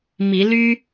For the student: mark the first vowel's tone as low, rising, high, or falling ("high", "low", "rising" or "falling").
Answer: rising